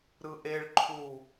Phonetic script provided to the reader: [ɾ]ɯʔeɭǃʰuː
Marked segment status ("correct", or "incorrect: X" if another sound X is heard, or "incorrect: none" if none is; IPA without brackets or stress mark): correct